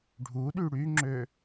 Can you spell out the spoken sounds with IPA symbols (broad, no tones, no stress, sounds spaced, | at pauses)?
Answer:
ɖʱ u ɗ y ɽ y ŋ͡ǁ ø